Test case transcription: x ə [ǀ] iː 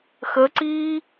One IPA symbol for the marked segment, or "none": ǀ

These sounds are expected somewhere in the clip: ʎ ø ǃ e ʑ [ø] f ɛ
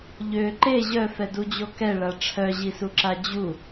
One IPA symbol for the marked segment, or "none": œ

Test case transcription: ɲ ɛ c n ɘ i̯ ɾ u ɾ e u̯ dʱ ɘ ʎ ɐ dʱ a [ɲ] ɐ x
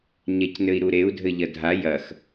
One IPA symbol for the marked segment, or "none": j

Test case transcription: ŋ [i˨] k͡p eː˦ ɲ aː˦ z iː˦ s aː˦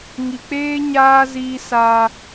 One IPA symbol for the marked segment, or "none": i˨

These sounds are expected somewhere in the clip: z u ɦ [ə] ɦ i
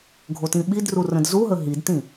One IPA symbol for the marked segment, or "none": ə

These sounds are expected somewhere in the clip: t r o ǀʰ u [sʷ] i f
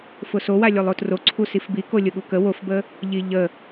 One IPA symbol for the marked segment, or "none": s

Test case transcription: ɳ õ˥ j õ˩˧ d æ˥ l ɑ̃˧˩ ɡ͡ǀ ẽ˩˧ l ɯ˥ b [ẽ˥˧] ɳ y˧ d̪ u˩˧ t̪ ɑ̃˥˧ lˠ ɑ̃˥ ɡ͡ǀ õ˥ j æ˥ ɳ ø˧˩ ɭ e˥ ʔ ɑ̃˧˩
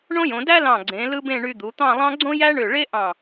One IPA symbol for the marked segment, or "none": ẽ˥˧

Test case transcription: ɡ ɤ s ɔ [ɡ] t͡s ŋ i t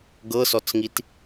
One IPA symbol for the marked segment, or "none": none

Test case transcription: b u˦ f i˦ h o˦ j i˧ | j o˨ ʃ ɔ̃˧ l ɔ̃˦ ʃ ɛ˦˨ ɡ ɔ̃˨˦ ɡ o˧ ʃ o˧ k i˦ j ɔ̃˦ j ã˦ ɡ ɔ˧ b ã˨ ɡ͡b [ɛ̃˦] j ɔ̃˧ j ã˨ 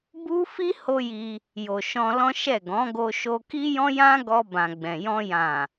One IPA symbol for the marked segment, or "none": ɛ̃˨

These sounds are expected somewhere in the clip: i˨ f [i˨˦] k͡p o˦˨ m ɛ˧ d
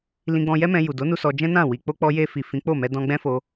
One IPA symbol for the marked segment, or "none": ĩ˨˦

